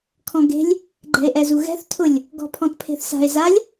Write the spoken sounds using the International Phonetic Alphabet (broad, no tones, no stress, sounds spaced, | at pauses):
kʰ ɔ̃ ɡ e̤ lʲ | ɡ͡ǃ ɛ̤ e̯ ʔ ɛ z u ɣ ɛ̤ θ tʰ ʊ lʲ | ɡ ɔ̤ pʰ ɔ̃ t pʰ e̤ θ s a̤ e̯ z a lʲ